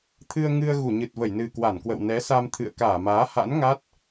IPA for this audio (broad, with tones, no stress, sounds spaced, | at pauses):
t̪ʰ ɨ˧ ə̯ ŋ ɨ˧ ə̯ ɣ u˧˩ ɲ ɨ˨˩ t̚ v ə˧˩ j n ɨ˨˩ k w a˧˩ n k w ə̰˧˨ w n ɛ˨˦ s a˧ m t̪ʰ ɨ̰˧˨ ə̯ k aː˧˩ m aː˨˦ h a̰˧˥ n ŋ a˦˥ t̚